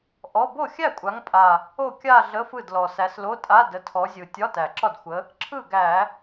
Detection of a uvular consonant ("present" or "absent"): absent